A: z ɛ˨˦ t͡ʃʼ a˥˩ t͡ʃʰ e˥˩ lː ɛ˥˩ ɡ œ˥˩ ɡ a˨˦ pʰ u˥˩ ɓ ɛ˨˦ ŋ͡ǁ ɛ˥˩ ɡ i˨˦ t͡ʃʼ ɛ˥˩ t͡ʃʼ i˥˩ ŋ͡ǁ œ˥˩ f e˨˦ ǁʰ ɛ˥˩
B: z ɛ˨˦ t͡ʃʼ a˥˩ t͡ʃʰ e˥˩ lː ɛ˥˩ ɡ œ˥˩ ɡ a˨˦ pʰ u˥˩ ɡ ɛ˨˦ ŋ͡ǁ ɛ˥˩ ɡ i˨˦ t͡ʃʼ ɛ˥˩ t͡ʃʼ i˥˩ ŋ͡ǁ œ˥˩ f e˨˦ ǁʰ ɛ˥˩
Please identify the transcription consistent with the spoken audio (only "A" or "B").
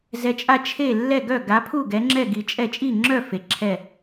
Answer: B